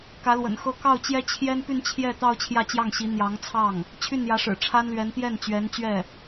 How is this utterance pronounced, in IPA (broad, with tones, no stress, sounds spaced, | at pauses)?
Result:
k ä˧˥ l w ə̰˨˩ n x ɤ˥ k ɑ˥˩ ʊ̯ t͡ɕ j ɛ˥ t͡ɕʰ j ɛ˥ n p y˥˧ n t͡ɕʰ j ɛ˥˧ t̪ ɑ˥˧ ʊ̯ t͡ɕʰ j ä˥˧ t͡ɕ j ɑ˥˩ ŋ ɕ i˧˥ n̪ j ɑ˧˥ ŋ t͡sʰ ɑ˥˩ ŋ | t͡ɕʰ y˥˩ n j ä˧˥ ʂ ɻ̩˨˩ ʈ͡ʂʰ a˥ n l ɥ ɛ˧˥ n t̪ j ɛ˥˩ n t͡ɕ ɥ ɛ˧˥ n t͡ɕ ɥ ɛ˥˩